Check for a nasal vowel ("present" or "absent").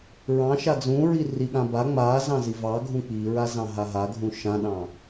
present